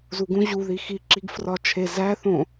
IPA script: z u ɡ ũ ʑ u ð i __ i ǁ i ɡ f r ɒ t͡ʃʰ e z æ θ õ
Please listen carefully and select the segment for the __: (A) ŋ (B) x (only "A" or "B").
B